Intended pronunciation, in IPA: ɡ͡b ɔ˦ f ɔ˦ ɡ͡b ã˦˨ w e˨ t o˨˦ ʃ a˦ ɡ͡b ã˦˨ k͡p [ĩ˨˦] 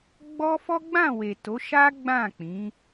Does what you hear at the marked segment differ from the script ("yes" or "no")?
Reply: no